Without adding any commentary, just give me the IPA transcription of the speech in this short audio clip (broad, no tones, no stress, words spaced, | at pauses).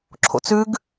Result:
ǁʰo̰t͡sʉɡ